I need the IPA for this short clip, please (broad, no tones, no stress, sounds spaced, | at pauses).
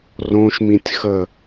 r õ ʃ m ĩ tʲ x ə